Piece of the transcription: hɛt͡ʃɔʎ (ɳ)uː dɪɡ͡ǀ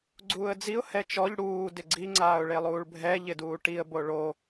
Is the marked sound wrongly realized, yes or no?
yes